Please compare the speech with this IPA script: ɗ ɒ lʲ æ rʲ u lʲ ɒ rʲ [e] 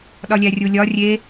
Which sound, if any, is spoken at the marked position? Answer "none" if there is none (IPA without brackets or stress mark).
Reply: e